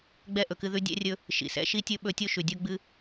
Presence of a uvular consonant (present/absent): absent